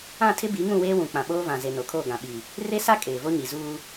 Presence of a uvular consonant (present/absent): absent